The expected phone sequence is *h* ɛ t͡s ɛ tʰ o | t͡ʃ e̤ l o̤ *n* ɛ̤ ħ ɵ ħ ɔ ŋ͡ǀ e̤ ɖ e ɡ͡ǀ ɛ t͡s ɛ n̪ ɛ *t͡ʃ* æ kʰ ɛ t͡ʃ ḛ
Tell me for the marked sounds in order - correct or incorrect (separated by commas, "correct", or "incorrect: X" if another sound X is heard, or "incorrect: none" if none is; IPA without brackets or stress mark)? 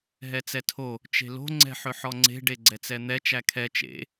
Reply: incorrect: ɦ, incorrect: ŋ͡ǀ, correct